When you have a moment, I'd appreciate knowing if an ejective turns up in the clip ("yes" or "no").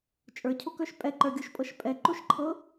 yes